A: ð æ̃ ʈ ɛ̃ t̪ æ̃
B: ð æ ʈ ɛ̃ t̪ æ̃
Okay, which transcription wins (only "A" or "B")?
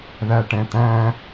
B